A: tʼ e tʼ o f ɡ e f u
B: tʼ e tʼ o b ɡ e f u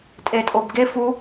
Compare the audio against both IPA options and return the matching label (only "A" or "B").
B